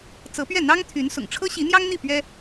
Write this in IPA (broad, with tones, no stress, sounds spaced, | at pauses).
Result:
t͡s ɤ˧˥ p ɥ ɛ˥˩ n̪ ɑ˥ ŋ t̪ʰ y˧˥ n s ʊ̰˨˩ ŋ ʈ͡ʂʰ ɤ˥ ɕ i˧˥ n̪ j ɑ˥ ŋ n̪ i˥˩ p ɥ ɛ˥